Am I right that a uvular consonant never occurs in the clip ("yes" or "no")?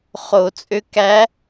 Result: no